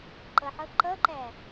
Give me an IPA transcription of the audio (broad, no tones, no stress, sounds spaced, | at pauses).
ǃ ʌ ħ ʌ ǃ ʌ ǃ æ